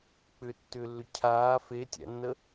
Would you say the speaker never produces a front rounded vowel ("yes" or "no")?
no